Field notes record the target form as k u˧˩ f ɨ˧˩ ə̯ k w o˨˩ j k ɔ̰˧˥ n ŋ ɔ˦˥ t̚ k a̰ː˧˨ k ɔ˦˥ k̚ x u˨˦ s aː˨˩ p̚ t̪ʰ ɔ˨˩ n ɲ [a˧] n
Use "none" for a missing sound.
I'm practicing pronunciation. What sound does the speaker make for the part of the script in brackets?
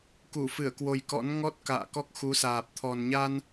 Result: a˧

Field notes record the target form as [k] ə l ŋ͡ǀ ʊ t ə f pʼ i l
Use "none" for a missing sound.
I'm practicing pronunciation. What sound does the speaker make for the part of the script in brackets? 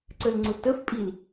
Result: ǀ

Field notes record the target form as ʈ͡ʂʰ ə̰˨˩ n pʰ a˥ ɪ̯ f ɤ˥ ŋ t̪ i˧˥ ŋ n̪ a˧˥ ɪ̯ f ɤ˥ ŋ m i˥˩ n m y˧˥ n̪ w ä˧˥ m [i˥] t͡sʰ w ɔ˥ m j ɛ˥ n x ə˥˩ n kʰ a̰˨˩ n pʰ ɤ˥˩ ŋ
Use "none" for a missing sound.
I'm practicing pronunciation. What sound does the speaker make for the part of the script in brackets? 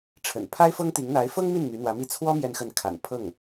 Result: i˥˩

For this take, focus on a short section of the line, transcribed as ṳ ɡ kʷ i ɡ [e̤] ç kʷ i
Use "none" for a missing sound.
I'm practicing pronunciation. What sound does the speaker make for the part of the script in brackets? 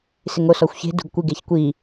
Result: e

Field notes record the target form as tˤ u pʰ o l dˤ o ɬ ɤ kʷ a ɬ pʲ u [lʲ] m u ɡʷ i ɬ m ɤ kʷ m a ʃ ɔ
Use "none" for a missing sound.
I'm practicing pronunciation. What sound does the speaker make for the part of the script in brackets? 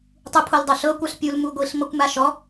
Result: l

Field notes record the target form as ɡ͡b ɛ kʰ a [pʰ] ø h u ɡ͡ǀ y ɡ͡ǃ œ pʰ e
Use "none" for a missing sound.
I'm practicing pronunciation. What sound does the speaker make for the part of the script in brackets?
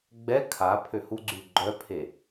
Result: pʰ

